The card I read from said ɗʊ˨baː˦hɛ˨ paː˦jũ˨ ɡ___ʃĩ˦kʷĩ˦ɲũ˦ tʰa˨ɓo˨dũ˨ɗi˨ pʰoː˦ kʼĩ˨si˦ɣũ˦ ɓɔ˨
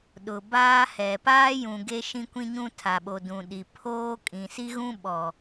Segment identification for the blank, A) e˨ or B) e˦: B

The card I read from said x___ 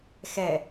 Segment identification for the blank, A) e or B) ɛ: B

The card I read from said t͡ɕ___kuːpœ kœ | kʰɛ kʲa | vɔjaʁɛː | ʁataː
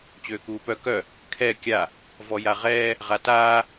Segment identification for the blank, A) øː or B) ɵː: A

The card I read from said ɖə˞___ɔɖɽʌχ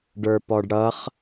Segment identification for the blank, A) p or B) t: A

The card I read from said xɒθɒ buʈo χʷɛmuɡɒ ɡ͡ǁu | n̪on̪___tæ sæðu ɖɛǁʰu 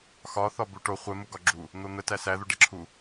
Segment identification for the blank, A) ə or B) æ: A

